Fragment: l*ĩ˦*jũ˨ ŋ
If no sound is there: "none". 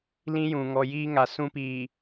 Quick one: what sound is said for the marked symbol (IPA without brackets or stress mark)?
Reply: ĩ˦